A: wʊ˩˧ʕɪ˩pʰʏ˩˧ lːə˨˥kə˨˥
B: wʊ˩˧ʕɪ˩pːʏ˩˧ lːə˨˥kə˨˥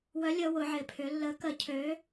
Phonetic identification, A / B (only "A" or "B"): A